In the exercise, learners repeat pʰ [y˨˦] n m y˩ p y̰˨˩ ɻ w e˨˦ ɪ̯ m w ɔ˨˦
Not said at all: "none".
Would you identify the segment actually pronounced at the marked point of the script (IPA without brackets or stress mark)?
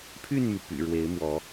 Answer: y˥˨